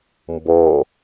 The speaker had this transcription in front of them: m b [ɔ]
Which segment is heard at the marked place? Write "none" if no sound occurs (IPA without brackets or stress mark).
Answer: ɔ